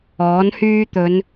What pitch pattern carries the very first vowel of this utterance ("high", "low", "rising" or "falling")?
rising